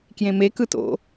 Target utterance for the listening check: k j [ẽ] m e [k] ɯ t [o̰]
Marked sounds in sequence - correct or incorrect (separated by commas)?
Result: correct, correct, correct